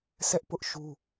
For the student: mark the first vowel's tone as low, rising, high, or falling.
high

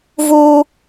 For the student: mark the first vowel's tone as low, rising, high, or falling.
high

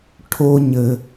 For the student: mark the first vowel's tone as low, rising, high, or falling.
low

